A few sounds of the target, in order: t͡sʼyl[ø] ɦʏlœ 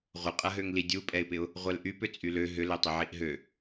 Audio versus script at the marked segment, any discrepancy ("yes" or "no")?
no